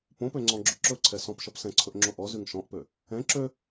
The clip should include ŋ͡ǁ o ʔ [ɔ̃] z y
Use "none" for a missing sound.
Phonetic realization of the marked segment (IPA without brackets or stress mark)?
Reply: ɔ